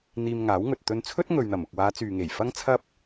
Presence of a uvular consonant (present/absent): absent